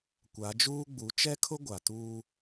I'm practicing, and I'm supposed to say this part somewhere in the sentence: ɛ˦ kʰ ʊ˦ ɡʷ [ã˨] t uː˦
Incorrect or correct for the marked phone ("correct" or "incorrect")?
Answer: incorrect